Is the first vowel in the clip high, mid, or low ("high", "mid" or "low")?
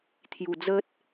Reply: high